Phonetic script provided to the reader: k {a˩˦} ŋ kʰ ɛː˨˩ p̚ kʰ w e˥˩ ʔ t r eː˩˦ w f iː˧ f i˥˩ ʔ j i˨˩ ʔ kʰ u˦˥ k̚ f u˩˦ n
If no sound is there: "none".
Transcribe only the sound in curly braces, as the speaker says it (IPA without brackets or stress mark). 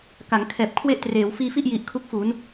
a˩˦